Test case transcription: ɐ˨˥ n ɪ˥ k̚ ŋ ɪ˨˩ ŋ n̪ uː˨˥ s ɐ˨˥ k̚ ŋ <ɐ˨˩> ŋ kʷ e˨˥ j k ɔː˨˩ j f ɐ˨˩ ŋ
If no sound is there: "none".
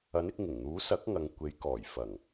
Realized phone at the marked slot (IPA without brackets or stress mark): ɐ˨